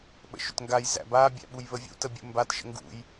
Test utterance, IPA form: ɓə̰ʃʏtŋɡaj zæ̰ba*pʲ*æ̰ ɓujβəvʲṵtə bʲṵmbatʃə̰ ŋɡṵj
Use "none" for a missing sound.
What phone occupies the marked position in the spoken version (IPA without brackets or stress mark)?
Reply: bʲ